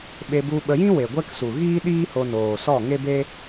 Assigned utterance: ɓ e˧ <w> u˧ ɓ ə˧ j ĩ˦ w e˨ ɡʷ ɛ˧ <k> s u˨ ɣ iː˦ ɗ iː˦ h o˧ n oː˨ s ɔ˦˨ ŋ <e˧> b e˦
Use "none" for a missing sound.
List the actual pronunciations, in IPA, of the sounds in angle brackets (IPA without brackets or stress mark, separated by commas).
b, k, e˦